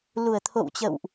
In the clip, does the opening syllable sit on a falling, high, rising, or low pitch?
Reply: low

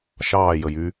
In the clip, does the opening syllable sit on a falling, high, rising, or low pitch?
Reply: falling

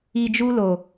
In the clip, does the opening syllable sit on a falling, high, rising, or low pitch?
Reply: low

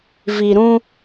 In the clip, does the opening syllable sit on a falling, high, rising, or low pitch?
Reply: low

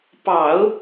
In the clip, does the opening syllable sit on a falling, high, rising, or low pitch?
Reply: low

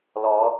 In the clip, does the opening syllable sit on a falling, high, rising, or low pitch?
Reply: rising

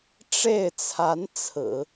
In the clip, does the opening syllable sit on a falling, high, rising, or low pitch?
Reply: falling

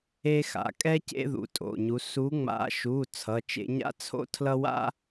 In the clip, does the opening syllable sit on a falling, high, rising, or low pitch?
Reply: high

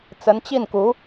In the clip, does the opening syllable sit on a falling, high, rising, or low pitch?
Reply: rising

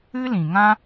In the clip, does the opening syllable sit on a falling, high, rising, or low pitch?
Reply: high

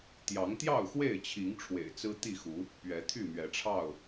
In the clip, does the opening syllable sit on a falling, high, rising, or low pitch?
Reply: rising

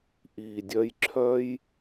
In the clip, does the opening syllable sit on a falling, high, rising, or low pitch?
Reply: low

